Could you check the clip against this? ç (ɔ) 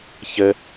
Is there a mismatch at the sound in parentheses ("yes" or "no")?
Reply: yes